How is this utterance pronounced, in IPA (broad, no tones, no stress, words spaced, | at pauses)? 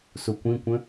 sukʷĩkʷə̃